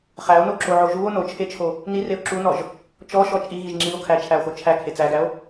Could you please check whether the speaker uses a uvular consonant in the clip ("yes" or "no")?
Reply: yes